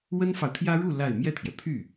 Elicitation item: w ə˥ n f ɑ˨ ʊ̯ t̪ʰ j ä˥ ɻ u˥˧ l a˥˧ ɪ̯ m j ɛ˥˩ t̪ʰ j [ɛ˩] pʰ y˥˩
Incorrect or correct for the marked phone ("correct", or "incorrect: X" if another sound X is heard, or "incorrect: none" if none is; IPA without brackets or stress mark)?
correct